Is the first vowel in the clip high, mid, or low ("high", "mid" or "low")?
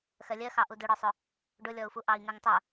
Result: mid